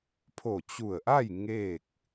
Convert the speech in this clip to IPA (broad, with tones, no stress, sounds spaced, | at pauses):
pʰ o˧˩ t͡ɕ u˧˩ ə̯ ʔ a˥˨ j ŋ e˥˨ k̚